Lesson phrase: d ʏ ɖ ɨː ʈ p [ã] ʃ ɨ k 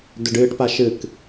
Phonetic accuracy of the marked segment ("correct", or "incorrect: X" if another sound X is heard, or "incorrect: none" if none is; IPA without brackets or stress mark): incorrect: a